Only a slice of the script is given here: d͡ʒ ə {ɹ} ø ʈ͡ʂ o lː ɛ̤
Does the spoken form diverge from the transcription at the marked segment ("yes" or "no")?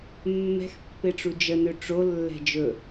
yes